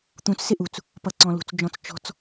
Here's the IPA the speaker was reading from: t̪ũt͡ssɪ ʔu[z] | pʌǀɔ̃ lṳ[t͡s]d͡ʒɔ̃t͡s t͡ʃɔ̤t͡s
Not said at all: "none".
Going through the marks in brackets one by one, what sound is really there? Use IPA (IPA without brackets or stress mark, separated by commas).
t͡s, t͡s